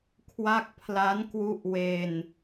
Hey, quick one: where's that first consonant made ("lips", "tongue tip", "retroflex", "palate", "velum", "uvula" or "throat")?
velum